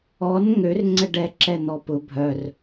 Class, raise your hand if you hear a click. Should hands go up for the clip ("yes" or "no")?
yes